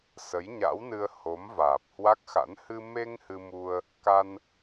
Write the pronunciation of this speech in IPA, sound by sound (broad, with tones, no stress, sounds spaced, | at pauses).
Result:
s ə˨˦ j ɲ a̰˧˥ w n ɨ˧ ə̯ h o˨˦ m v aː˨˩ p̚ h w a˦˥ k̚ x a̰˧˥ n h ɨ˧ m e˧ ŋ h ɨ˧ m u˧ ə̯ | k a˧ n